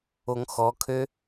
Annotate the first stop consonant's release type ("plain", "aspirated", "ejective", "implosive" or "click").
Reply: aspirated